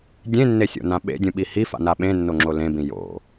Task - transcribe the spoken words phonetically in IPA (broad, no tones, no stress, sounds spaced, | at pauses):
dʲ ẽ nː e sʲ o̰ n ã ɓ ḛ dʲ ũ ɓ i h i f a̰ n a ɓ ẽ nː o ŋ͡ǁ o l ẽ b ĩ j o̰